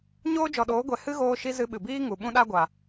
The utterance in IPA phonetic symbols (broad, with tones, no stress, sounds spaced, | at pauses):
ɲ oː˦ d͡ʒ ɔ˨ ɗ oː˨˦ ɡʷ ɛ˨ h ɨ˦ ɣ oː˧ ʃ i˧ z ɨ˧ ɓ ɨ˨ b iː˦ ŋ u˨ ɓ ũ˦ ɗ a˦ ɡʷ a˨